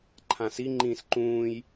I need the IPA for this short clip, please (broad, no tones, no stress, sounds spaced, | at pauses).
ǃʰ ã s i ŋ͡ǃ ĩː s ǃ ũː j